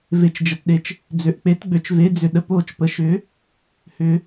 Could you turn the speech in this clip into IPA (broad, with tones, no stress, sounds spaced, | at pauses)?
v e˧ t͡ʃ d͡ʒ ə˧ t ɗ e˧˥ t͡ʃ | d͡z ø˧ ʔ k͡p e˧˥ t ɡ͡b ø˧ t͡ʃ v e˧˥ d͡z ʏ˧ ɗ ə˧˥ p oː˧ t͡ʃ p ə˧ ʃ ʏː˧˥ | h ʏː˧